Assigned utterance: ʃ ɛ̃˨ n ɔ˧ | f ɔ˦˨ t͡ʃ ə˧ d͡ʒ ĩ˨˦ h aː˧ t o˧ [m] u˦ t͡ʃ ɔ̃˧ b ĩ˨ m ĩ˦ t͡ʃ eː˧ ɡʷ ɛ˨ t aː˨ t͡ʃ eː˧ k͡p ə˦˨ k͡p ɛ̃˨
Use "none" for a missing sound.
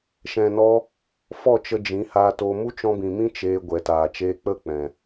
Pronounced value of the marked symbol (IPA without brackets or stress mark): m